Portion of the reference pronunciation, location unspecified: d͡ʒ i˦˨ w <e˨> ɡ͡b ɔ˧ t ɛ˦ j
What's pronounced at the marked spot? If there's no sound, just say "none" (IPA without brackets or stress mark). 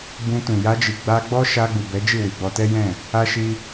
i˨